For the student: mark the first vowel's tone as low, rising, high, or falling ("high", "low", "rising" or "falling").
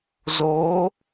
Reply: rising